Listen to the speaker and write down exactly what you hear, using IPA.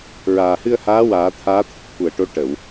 ɹ aː˨˩ h ɨ˧ ə̯ h aː˧˥ w aː˨˩˦ t̪ʰ aː˧˥ t̪ʰ ə˨˩ k̚ t̪ʰ u˨˩ ə̯ ʈ o˧˥ ʈ ə˨˩˨ w

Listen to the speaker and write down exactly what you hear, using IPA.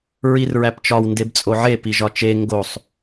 ɹ i r ɹ æ p t͡ʃ ɒ w n d e b t͡sʼ o ʕ e p i ʒ ɒ t͡ʃ e ŋ ɡ o sˤ

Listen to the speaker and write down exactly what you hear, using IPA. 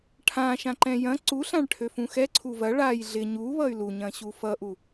ʈʰ ã ʃ ã ǃ ɛ̃ j ɐ̃ ǀ u ɬ ã ɭ ʈʰ ø f ũ x ɛ ǀʰ u v ɐ ɭ a j ɮ ɪ ɲ u β ʌ y̯ l u ɲ ɐ̃ ɕ u f ʌ ʔ u

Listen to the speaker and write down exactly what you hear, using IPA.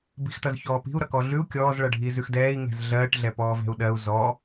b i̤ x t ʌ z ç ɔː p i̤ u̯ ɾ ʌ k ɔ ɮ ʉ u̯ kʲ ɔː z ɭ ʌ ɖʱ iː z ʉ x d ɛː i̯ ŋ ɛ̤ z ɮ ɜː ʈ ɮ ɛ p ɔː v ɛ̤ u̯ ɗ ɜ u̯ z ɔ

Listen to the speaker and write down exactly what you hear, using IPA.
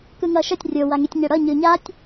k ɯ ŋ ʌ ʃ ʌ tʲ rʲ o w a ŋ i tʲ ɲ ɛ ɽ ʌ ɲ ɯ ɲ a tʲ

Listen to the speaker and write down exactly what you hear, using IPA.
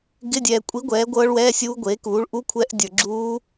ɡ ɪ˧˥˧ dʲ ɛː˨ kʷʼ i˨˥ ɡʷ ɛː˨˥ ɡʷ ɤ˦˥ ɭ w ɛː˧˥˧ sʲ uː˦˥ ɡʷ eː˨˥ k uː˨˥ ɭ ʔ u˧˥˧ kʷʰ ɛ˦˥ ʔ dʲ ə˞˨ ɡ͡ǁ uː˦˥

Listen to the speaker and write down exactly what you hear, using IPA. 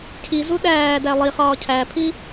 cʰ i z u ɗ æː d æ lˠ i χ ɒː cʰ æ pʰ i

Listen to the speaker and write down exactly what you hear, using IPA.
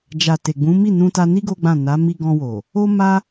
d͡ʒ a˨ t e˨ ɡ͡b ũ˨˦ m i˦˨ n ũ˧ t a˧ n i˦ ɡ o˦ ɡ͡b ã˦˨ n a˨˦ m i˧ ɡ ɔ̃˧ w o˨ | o˦ m a˦

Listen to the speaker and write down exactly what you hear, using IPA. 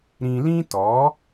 ɾ ĩ˧ l ĩ˦ t ɔ˨˦

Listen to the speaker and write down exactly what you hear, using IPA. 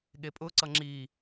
ɠ e pʼ ʊ ǀ ʌ ŋ͡ǁ i

